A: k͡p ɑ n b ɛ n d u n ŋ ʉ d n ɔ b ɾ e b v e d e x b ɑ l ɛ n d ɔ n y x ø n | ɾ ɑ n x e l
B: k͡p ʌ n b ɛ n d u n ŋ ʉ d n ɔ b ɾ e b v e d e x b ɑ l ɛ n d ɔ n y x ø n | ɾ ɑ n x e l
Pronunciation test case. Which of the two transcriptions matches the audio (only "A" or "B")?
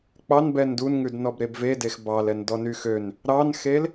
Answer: A